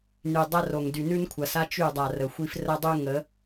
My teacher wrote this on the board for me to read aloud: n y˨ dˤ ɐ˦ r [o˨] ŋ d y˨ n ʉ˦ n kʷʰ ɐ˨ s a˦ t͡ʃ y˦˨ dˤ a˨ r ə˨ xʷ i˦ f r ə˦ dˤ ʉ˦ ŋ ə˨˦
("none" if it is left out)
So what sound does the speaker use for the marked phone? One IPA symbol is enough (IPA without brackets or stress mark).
o˨